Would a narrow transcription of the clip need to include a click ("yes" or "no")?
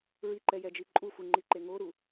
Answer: yes